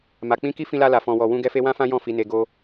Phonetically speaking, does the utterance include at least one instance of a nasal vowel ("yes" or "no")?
yes